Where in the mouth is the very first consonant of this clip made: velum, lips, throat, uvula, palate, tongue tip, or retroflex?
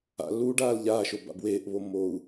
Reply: tongue tip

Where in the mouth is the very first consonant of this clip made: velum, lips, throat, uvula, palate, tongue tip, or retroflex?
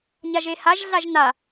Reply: palate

